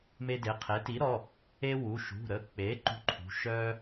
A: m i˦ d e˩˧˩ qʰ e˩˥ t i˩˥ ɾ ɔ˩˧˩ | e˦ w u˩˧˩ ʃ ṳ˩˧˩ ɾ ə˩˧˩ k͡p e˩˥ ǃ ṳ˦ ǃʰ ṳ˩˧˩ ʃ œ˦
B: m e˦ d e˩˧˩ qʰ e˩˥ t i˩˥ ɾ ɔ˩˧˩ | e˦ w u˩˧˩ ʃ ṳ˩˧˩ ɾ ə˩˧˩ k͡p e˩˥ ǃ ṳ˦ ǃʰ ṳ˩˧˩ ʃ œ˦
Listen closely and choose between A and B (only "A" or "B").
B